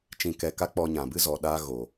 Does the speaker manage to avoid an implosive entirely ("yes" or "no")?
no